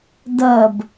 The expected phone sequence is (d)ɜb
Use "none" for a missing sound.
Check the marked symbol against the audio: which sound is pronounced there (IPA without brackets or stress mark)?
d